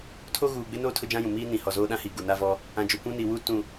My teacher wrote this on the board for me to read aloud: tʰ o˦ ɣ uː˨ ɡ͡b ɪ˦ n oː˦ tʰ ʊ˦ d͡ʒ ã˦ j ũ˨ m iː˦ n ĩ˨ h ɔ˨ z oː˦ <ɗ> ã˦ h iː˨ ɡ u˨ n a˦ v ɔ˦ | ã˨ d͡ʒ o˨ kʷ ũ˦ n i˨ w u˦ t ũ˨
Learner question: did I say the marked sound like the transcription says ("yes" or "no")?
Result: yes